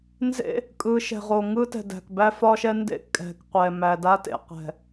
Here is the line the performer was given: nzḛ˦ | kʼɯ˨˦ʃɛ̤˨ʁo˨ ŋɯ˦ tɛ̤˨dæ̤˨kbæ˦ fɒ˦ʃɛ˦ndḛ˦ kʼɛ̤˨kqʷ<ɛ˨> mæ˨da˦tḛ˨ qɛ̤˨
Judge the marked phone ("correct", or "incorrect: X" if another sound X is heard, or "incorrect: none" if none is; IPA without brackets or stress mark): correct